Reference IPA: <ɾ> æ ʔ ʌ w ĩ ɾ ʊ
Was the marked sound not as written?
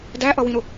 yes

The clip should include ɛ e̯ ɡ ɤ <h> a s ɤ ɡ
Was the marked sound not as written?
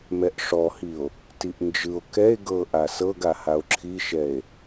yes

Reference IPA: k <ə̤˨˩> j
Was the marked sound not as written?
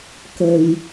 no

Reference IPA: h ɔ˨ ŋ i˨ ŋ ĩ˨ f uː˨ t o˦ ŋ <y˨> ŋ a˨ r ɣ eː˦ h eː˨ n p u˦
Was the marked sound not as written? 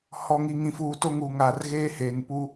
yes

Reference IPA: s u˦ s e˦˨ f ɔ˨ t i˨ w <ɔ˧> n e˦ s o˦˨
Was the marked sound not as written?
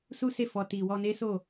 no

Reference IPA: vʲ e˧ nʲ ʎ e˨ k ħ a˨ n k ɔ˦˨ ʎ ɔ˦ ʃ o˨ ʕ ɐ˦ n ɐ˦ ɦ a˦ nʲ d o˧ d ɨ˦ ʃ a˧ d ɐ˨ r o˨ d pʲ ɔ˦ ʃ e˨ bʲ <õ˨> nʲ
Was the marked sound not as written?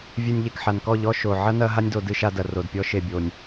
yes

